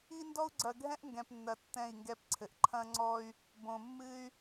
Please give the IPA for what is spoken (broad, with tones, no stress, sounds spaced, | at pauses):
i˦ n d ɔ˦ u̯ ɡ͡ǀ ɐ˨ ɡʱ ɛ̃˦ ʔ ŋ ɡ ɛ̃˨ p nː ɐ˨ tː ɛ̃˦˨ i̯ ŋ ɡ ɛ˦ p ǀʰ ɘ˨ ʔ ǃʰ ɐ̃˦ ŋ͡ǀ ɔ˦ y̯ | b õ˨ mː ɨ˦ y̯